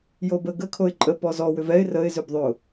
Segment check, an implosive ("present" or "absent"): absent